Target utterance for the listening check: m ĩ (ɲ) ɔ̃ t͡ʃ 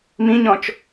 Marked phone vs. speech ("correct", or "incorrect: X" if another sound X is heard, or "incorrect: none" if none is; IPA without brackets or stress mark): correct